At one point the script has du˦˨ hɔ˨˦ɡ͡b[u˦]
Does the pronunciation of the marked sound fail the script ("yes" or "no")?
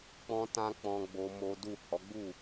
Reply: yes